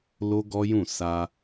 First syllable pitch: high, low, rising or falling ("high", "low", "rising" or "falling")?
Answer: high